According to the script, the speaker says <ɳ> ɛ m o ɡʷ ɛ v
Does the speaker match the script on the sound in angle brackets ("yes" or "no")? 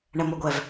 yes